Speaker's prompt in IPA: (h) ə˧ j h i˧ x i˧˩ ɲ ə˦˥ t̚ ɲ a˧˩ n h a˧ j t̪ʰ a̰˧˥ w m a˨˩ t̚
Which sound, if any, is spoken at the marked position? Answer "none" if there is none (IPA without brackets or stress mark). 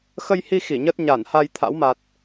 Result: x